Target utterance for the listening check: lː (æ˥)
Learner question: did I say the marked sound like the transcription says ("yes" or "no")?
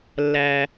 no